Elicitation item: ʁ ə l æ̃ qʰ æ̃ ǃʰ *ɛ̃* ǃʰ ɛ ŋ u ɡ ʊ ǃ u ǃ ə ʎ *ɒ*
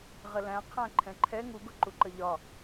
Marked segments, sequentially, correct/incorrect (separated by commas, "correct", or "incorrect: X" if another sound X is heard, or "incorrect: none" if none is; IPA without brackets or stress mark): correct, correct